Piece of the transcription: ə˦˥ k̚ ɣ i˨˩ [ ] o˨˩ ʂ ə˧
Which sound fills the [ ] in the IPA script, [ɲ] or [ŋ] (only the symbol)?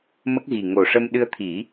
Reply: ŋ